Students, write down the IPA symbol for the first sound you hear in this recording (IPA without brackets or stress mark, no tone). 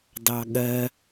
d